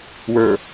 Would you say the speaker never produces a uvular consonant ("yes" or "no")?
yes